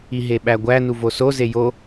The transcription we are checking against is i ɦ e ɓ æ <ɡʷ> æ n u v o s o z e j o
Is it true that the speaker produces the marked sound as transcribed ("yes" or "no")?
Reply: yes